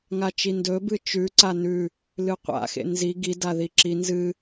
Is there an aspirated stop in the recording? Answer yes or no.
no